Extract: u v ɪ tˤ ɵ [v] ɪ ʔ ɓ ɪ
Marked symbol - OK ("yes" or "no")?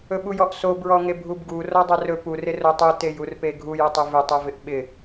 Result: yes